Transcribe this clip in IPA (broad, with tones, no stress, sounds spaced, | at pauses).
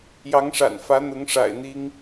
j ɑ˧˥ ŋ ʂ a̰˨˩ n f ä˧˥ n̪ ʊ˧˥ ŋ ʂ a̰˨˩ ɪ̯ n̪ i˥ ŋ